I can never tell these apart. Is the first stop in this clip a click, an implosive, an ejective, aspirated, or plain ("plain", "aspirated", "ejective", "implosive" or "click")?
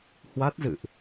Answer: plain